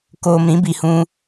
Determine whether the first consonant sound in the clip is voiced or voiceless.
voiceless